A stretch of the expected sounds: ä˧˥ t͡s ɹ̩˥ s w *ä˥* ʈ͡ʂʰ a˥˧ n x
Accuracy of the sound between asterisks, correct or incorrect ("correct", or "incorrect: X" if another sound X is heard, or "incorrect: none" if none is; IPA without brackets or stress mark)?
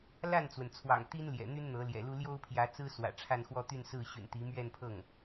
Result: incorrect: ä̰˨˩